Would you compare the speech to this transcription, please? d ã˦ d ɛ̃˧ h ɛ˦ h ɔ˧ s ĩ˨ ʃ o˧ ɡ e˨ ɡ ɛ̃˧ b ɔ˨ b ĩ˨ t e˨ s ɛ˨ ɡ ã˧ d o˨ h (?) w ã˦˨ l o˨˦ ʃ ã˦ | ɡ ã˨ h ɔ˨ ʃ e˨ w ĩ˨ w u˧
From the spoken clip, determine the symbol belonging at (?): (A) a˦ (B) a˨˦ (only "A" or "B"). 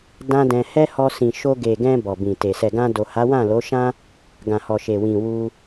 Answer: B